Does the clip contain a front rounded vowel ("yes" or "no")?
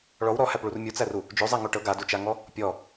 no